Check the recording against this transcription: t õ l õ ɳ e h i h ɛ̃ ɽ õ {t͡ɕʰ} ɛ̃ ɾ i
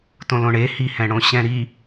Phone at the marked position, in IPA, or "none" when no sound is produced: ɕ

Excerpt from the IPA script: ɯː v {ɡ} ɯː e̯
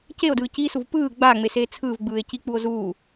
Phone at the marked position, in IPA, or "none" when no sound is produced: ɡ͡b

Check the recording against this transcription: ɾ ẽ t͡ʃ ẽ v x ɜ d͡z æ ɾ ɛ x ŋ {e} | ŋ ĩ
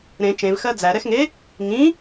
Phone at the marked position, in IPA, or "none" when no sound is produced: e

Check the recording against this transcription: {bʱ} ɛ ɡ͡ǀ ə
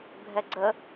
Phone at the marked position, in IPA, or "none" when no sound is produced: bʱ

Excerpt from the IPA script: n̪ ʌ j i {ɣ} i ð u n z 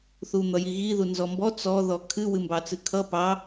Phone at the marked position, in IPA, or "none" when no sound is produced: ɣ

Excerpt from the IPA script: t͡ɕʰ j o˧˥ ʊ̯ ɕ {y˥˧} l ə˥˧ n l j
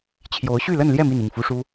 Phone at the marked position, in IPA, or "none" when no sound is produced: y˥˧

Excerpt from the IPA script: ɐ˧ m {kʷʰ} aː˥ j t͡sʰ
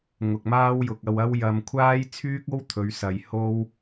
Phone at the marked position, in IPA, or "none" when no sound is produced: kʷʰ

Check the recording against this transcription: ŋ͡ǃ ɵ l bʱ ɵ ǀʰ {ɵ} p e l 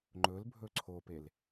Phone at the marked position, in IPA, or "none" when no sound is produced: o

